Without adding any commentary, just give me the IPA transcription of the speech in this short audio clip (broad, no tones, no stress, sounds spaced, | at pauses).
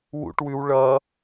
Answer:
w ṵ ʈ w ʉ w ɭ ʌ